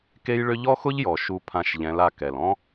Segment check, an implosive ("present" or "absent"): absent